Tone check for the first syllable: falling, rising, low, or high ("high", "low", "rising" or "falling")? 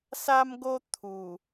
high